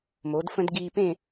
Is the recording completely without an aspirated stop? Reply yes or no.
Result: yes